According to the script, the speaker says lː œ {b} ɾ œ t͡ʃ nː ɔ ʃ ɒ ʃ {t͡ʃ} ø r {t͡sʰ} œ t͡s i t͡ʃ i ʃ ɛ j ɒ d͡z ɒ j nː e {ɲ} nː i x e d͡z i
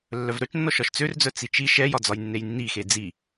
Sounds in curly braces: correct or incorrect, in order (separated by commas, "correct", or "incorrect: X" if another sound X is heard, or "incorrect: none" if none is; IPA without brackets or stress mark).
incorrect: v, incorrect: t͡s, incorrect: d͡z, incorrect: j